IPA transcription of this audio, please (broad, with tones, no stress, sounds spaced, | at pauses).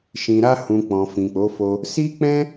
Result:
ʃ ĩ˨ ɾ a˧ h ũ˨ k͡p ɔ̃˨ f ĩ˨ k͡p o˨˦ f o˧ | s i˦ k͡p ɛ̃˦